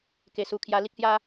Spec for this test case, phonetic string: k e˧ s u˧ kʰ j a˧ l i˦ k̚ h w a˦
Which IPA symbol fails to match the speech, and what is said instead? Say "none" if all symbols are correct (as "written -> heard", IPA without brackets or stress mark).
w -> j